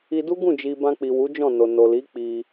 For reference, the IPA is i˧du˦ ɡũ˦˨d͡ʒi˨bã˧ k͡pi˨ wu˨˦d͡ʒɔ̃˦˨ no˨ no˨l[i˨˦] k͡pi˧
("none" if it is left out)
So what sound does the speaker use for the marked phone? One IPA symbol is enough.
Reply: i˨˦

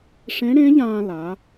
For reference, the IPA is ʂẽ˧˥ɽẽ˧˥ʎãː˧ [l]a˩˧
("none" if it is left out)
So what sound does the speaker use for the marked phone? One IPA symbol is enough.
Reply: l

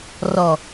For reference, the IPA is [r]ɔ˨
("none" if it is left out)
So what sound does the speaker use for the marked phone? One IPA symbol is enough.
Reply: r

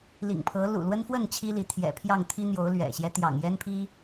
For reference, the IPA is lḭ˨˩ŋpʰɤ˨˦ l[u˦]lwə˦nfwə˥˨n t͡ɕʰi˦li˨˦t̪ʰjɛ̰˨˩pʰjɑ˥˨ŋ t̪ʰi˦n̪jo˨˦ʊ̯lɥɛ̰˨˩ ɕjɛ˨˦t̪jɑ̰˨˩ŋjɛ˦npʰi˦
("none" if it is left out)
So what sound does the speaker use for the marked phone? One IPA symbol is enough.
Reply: ṵ˨˩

